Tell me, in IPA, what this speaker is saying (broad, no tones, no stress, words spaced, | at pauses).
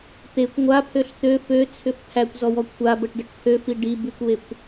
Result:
t̪ekʷ ŋʷapʰøɬ t̪ø føt͡sʰʏf pʰækʷzɔwɔ kʷʰabəʈɖəʈ pʰøfi ɖi bykʷwekʷ